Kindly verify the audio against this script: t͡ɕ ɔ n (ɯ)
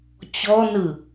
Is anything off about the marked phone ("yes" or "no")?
no